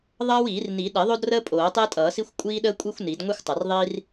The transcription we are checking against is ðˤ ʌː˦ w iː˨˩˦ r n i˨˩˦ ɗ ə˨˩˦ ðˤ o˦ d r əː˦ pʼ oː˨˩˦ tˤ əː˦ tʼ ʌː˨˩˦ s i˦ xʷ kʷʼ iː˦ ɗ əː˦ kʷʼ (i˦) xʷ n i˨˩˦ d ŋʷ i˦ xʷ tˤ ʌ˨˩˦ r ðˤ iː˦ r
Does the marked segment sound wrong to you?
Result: no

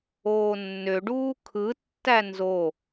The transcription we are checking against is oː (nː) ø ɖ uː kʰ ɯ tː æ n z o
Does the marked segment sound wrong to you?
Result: no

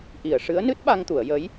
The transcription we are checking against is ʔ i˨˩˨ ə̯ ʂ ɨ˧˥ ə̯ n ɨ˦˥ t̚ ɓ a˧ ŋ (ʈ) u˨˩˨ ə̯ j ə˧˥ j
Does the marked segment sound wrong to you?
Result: yes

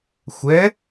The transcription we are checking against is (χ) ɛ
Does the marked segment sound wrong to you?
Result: yes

